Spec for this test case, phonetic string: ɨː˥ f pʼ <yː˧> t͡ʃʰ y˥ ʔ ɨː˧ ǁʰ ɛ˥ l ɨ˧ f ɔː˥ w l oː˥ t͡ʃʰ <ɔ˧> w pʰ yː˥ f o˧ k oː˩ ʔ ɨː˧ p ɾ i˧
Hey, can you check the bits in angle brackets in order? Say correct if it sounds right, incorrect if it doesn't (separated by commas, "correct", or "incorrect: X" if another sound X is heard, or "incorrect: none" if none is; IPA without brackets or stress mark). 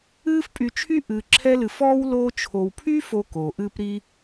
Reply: incorrect: y˧, incorrect: o˧